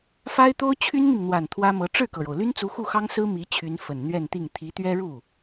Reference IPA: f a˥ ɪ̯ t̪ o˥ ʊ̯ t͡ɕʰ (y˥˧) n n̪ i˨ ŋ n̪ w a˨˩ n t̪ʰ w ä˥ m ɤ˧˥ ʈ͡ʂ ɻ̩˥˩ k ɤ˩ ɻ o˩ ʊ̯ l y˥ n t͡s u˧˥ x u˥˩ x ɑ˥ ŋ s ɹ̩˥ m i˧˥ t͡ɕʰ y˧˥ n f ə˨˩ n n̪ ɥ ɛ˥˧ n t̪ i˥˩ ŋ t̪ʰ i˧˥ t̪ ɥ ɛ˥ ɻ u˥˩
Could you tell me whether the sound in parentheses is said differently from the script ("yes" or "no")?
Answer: yes